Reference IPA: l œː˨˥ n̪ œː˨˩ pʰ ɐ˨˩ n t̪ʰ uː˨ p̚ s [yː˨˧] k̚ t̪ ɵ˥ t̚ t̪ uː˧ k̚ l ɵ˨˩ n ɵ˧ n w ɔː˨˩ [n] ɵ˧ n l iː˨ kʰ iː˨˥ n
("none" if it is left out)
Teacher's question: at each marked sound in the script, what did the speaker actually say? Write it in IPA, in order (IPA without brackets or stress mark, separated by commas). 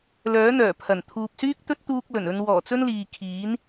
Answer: yː˥, t͡s